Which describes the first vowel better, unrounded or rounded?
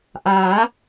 unrounded